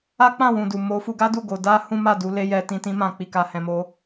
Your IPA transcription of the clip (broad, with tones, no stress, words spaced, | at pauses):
a˦k͡pã˦˨ wũ˨du˨mo˨˦ fu˧ɡa˦du˦˨ ɡo˨˦ da˦ hũ˦ma˦˨ du˧le˦jɛ˧ tĩ˧tĩ˦mã˦˨ k͡pi˧ka˧hɛ̃˧mo˦